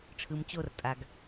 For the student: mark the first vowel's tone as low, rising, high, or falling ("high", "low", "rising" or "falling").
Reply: low